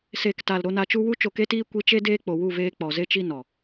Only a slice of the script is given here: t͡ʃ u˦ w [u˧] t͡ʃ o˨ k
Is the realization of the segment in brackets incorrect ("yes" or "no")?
no